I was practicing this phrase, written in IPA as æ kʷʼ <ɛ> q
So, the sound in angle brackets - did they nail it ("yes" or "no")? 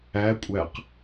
no